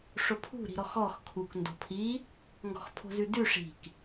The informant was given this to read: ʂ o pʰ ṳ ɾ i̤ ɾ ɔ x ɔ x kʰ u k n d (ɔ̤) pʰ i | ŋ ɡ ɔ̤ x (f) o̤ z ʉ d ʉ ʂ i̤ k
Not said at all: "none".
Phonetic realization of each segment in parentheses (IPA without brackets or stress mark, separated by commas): ɔ̤, pʰ